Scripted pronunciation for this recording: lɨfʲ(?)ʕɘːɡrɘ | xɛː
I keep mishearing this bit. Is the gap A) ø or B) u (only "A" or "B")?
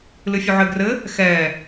B